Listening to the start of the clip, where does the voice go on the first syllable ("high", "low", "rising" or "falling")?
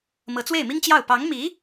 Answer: rising